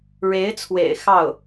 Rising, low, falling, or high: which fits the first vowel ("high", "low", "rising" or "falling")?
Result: rising